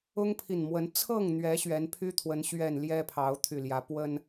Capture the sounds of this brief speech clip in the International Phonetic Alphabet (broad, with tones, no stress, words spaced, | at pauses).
ʊ˦ŋpʰi˨˩nmwə˨˦n t͡sʰɤ˥˨ŋn̪ɥɛ˨˦ ɕɥɛ˨˦npʰy˦t̪ʰwə˨˦n ɕɥɛ˨˩n ljɛ˦pʰɑ˨˦ʊ̯t̪ʰy˨˩ljä˨˦ pwə˦n